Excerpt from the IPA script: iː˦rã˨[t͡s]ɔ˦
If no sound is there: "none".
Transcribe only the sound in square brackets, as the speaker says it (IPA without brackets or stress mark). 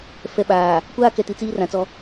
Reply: t͡s